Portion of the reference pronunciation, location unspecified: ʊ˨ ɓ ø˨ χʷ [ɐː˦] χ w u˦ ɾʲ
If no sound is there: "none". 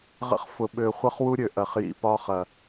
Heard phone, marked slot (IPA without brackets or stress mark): ɐ˦